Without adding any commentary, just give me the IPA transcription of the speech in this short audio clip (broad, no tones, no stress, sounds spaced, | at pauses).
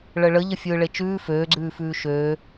ɭ ə ɭ ə ʎ ə fʲ ɯː ɭ e t͡ʃ ʉː f øː ɡ͡ǀ ʉː f ʉː ʃ øː